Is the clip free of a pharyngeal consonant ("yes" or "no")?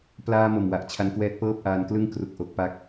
yes